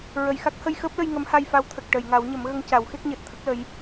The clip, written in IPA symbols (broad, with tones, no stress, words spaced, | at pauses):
ɹə˨˩˨jxa˦˥k̚ hə˧jxəː˦˥p̚lə˧j ŋə˧˥mha˧jfa˧˥w t̪ʰə˨˩k̚ʈə˨˩˨jŋa˨˩˦wɲə˨˩˦m ɣə˧ŋca˨˩˦w xe˦˥k̚ɲəː˨˩t̚t̪ʰə˦˥k̚ lə˧˥j